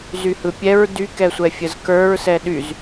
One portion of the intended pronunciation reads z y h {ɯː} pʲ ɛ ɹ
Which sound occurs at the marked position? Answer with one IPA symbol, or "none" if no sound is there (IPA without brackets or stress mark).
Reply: ɯ